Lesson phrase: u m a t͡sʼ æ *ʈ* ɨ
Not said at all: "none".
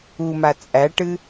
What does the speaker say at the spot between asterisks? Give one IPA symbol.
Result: ʈ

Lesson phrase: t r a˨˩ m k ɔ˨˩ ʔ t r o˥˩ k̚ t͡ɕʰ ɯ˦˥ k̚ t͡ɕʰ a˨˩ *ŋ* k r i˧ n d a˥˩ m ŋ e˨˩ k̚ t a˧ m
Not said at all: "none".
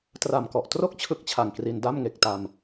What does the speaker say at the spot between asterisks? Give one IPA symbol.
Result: ŋ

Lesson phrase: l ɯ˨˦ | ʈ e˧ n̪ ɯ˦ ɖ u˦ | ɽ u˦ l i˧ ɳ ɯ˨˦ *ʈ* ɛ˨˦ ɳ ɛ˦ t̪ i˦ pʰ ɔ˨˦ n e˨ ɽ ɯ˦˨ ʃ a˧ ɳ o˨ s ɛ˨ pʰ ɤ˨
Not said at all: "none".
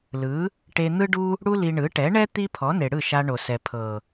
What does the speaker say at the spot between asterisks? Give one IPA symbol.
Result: ʈ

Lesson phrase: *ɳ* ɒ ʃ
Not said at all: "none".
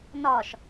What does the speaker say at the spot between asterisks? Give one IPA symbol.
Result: n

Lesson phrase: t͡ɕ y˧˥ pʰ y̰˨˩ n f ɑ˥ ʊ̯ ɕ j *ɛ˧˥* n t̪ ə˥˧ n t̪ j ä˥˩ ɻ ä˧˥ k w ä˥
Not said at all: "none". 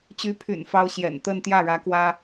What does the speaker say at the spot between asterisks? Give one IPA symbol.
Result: ɛ̰˨˩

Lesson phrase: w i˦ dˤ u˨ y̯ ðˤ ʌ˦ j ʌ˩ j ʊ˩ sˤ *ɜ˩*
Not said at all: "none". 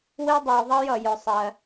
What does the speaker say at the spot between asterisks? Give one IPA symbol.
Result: ɜ˩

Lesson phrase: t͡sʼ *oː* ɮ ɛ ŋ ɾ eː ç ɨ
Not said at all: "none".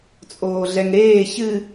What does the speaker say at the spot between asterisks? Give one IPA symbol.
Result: oː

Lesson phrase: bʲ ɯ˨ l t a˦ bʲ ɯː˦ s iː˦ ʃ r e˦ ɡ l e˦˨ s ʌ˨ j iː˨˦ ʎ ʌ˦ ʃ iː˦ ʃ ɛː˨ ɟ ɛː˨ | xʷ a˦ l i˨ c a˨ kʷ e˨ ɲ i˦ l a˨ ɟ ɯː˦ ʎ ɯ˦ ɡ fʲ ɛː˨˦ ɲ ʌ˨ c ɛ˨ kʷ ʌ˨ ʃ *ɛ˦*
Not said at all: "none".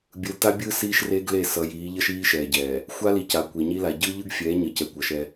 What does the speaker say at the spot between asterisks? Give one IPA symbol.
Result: ɛ˦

